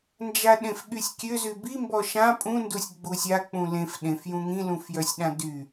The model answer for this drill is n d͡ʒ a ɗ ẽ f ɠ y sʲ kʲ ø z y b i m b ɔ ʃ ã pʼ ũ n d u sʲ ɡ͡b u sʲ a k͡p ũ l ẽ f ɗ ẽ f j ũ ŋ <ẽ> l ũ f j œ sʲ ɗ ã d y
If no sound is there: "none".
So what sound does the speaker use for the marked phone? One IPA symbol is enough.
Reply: ĩ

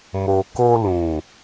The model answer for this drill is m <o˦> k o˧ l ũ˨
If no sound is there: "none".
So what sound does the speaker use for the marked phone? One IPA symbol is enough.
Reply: o˨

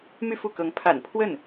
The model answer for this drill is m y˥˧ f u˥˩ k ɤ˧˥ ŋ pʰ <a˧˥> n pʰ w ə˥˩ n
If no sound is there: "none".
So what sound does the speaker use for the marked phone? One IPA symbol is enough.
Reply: a̰˨˩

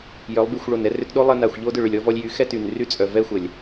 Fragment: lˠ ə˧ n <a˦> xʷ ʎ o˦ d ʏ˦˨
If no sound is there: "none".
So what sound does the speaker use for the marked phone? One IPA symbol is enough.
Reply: a˨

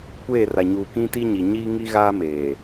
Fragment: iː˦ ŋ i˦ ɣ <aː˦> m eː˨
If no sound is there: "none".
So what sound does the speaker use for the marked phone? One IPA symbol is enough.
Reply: aː˦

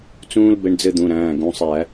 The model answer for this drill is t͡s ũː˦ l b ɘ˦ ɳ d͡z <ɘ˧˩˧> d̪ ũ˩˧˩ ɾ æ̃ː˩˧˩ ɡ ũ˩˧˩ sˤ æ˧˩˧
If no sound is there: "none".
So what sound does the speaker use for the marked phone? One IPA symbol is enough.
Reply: ɘ˦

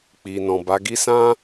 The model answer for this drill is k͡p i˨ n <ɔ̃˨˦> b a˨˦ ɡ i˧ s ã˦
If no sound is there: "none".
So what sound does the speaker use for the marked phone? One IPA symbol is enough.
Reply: ɔ̃˨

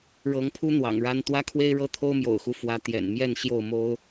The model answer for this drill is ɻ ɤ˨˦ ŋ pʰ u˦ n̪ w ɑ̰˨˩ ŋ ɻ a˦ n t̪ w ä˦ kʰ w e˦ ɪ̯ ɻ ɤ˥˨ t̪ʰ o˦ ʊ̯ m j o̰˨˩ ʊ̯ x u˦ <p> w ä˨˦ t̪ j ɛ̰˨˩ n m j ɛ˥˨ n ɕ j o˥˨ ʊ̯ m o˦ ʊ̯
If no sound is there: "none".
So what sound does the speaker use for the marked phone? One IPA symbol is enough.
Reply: f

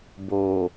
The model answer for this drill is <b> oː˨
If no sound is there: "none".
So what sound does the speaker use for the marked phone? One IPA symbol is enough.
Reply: b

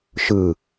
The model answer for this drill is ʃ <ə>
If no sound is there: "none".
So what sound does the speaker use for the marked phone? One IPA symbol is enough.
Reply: ɯ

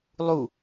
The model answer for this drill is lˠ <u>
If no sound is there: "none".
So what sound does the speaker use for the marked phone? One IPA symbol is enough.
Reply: u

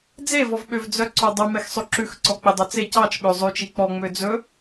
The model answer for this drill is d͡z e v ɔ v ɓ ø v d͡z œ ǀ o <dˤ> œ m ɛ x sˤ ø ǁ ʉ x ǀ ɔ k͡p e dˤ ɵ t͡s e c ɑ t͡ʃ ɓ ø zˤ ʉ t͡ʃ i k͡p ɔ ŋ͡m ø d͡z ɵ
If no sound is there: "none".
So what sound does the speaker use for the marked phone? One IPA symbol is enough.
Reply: dˤ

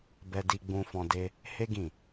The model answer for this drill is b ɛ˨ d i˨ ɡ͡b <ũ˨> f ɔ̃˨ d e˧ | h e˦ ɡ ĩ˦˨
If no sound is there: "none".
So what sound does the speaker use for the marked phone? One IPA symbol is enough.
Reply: ũ˨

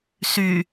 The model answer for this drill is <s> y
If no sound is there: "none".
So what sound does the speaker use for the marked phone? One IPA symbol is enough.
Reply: s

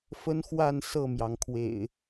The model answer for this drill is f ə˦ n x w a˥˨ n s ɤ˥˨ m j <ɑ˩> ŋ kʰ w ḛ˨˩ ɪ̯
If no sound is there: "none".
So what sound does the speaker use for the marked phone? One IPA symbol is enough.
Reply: ɑ˩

